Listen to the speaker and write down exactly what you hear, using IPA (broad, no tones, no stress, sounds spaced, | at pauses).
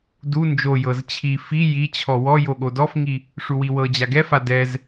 d u n d͡ʒ o j ɤ z t͡ɕʰ i f i j i t͡ɕʰ ɔ w ɔ j o ɠ o d ɔ f ŋ i | ʂ u w i w ɤ d͡ʑ a ɡ ɛ f a d ɛ z